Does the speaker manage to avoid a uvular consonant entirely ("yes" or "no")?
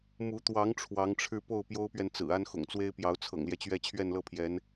yes